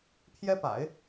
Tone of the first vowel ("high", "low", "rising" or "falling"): high